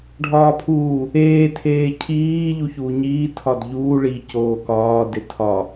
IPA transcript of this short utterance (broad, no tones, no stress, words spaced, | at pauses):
ɖʱɒːpʰuː | eː tʰeːcʰiː ʎuçuːɲiː tʰɒdʎuː ɭi coːkɒː detʰɒ